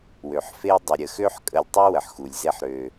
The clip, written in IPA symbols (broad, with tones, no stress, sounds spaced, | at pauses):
w ø˨ ħ f e˦ dˤ ə˨ ɾʲ ə˨ x ø˦ ħ kʼ ə˧ lʲ tˤ u˦ w ə˨ ħ x u˨ lʲ z e˦ ħ ɾ ø˧